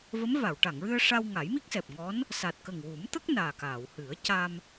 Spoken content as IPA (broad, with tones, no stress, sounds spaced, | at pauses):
v ə˧˥ m v a˨˩˨ w ʈ a˨˩˨ ŋ ɹ ɨ˧ ə̯ ʂ a˧ w ŋ a˨˩˦ j m i˦˥ k̚ s ɛ˨˩ p̚ ŋ ɔ˧˥ n | s a˨˩ t̚ k ə˨˩ ŋ w u˨˩˦ m t̪ ə˦˥ k̚ n aː˨˩ k aː˨˩˨ w h ɨ˨˩˦ ə̯ c a˧ m